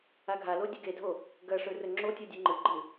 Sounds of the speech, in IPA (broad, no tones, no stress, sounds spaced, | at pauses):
a ɡʱ a l o dʲ ɵ ɡ e dʱ o | ɡ ɐ ʂ ɵ r ɵ ŋ͡ǁ o tʲ o dʲ ɨ ŋ͡ǃ ɨ ɡ͡ǃ ɨ